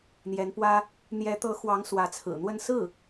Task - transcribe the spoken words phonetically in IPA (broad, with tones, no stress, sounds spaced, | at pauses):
n̪ j ɛ˧˥ n p w ä˥ | n̪ j ɛ˧˥ t̪ ɤ˧˥ x w ɑ˧˥ ŋ s w ä˧˥ t͡sʰ ɹ̩˨˩ n̪ w ə˥˧ n s ɹ̩˥˩